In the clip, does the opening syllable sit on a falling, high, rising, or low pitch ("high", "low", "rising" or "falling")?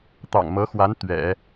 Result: low